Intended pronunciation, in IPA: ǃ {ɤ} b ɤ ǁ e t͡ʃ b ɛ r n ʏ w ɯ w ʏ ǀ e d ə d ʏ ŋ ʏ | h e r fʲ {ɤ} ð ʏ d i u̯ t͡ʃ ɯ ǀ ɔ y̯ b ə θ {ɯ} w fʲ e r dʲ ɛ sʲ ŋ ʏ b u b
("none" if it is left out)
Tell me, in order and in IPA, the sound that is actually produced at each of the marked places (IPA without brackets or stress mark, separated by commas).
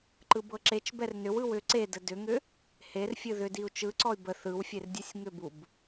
ɯ, ɯ, ɯ